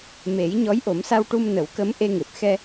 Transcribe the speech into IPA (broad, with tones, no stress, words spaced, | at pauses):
me˨˩˦j ɲɔ˧˥jʔo˨˩˦msa˧wʈu˧m nə˨˩˦wkə˧˥m ʔe˧ŋe˨˩p̚ xɛ˧